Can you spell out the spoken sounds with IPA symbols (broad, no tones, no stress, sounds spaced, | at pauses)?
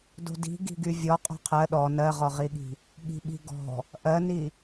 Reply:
d o̤ d i̤ ɡ i̤ ɡ y vʲ ɔ qʼ o̤ qʰ ɜ ɗ ɔ n ɜ ʁ ɔ ʁ i ɠ i̤ | ɠ i̤ ɓ i̤ ɡ ɔ̤ | ʔ ɜ n i